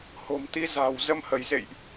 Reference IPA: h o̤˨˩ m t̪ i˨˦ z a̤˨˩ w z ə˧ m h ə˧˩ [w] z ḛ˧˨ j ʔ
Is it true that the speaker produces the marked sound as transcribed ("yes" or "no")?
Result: no